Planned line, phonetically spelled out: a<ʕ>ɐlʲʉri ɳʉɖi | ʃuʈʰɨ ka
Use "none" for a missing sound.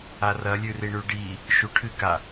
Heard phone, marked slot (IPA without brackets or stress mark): r